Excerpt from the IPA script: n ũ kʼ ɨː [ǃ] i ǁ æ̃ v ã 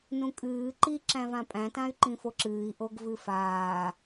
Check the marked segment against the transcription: correct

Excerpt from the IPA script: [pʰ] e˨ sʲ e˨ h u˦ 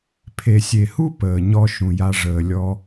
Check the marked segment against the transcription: correct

